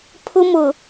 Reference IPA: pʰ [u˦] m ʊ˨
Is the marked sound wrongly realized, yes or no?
yes